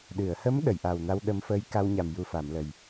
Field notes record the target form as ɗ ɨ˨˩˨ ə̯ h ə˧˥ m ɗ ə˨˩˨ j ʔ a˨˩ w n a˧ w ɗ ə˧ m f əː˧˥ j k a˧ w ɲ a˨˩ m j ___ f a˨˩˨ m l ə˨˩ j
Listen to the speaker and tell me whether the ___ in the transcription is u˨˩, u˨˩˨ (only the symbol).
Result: u˨˩